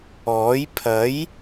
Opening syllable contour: rising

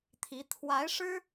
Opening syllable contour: rising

